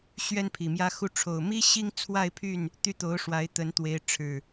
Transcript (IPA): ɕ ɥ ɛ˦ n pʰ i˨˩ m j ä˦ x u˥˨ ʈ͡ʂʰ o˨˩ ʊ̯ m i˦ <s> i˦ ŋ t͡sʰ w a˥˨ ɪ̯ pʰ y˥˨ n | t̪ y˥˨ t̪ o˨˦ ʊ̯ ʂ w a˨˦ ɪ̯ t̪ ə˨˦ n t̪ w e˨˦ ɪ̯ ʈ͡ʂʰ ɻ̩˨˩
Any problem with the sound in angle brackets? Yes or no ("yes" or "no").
yes